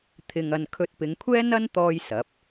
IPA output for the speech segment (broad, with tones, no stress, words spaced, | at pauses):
t̪ʰɪ˧ŋɐ˧n kʰɵ˧t̚pɪ˨˧ŋkʷʰɛː˥nɐ˥n t̪ɔː˥jsɐ˨˥p̚